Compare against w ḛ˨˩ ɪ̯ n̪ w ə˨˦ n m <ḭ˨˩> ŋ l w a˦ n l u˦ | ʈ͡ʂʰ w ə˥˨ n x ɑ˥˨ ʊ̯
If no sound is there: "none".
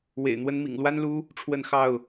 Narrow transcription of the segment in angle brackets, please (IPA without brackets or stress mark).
ḭ˨˩